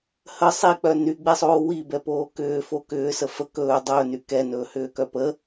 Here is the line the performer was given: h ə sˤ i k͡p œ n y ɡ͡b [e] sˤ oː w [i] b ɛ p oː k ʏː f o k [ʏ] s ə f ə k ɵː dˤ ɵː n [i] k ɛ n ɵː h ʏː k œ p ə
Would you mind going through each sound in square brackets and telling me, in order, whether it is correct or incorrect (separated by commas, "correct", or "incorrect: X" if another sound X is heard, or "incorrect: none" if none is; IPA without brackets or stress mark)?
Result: correct, correct, incorrect: ʏː, incorrect: y